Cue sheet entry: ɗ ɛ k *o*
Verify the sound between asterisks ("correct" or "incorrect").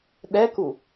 incorrect